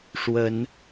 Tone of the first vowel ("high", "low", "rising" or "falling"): rising